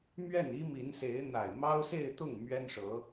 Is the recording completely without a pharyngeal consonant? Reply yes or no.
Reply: yes